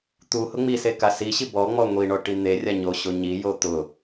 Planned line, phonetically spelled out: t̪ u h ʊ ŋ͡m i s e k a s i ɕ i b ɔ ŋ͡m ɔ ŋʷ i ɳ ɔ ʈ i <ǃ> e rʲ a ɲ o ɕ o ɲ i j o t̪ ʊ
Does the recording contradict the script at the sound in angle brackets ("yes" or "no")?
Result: yes